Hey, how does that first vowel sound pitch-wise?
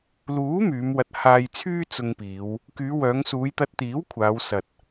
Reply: rising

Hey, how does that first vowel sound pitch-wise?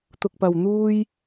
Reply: low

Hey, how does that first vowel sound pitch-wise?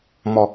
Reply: low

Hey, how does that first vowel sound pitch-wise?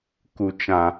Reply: low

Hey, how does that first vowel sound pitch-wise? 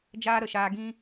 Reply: high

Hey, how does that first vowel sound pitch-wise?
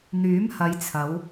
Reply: rising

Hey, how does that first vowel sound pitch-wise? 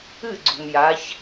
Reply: falling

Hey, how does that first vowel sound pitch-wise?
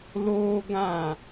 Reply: high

